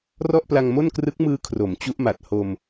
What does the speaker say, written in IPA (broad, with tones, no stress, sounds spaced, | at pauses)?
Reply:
r ɔ˥˩ ʔ p l a˧ ŋ m o˥˩ n k r ɯ˦˥ k̚ m ɯː˦˥ kʰ r o˩˦ m t͡ɕ u˦˥ ʔ m a˨˩ t̚ h o˧ m